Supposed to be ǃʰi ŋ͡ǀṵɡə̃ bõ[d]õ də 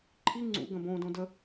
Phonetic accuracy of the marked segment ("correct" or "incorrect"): correct